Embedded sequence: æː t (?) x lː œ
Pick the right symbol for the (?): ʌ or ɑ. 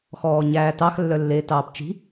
ɑ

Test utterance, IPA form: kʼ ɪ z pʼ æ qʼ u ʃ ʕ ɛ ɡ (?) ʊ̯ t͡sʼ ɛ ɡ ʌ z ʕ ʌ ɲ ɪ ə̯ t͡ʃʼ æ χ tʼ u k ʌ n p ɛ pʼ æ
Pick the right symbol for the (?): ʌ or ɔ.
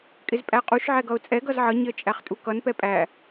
ʌ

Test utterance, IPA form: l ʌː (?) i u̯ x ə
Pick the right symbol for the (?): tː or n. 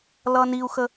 n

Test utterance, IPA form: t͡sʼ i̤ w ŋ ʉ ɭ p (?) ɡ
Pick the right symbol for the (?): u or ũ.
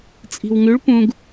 ũ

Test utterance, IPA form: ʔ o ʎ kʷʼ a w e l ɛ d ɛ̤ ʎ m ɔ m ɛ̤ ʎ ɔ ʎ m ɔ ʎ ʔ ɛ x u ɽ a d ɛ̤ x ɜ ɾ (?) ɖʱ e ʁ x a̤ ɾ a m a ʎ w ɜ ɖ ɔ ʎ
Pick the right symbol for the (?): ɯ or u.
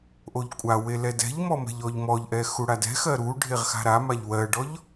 u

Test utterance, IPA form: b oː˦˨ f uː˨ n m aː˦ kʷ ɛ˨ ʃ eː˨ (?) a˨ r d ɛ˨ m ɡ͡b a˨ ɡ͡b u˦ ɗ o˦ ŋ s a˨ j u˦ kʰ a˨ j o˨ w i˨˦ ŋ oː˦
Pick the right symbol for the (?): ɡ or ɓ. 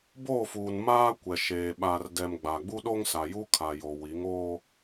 ɓ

